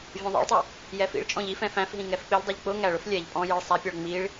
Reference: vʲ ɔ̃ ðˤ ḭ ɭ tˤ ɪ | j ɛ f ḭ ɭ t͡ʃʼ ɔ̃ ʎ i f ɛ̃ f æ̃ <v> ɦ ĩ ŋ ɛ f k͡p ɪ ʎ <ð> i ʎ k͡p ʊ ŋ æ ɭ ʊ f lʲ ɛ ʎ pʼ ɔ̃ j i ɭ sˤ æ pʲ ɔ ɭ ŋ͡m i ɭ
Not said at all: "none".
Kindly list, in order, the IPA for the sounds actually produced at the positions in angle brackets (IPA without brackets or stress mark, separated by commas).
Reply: f, dˤ